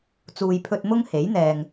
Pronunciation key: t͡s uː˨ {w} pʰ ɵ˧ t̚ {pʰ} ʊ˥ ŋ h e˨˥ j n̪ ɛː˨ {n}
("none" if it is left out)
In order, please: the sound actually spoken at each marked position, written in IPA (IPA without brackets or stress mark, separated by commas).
j, m, ŋ